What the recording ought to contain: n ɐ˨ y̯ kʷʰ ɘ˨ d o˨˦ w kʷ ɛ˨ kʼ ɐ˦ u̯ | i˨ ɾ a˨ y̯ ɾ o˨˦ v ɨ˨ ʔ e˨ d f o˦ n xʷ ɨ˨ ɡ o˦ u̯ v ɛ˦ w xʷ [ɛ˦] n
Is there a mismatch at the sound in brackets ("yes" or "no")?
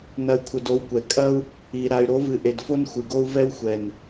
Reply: yes